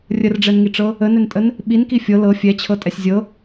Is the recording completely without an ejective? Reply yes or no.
no